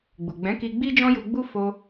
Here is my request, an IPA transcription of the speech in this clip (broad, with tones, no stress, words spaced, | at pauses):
ɡ͡bu˨ɡ͡bɛ̃˨˦ki˧ ɡ͡bi˦d͡ʒɔ̃˦ju˧ɡ͡bu˦ fo˧